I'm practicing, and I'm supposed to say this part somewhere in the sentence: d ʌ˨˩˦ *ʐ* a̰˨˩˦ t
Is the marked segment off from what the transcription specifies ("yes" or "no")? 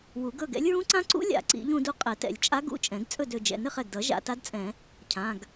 yes